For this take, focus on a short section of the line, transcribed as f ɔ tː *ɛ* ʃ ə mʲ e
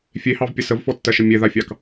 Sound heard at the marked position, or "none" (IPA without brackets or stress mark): ɜ